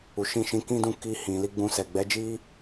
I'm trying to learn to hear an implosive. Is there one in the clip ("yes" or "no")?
no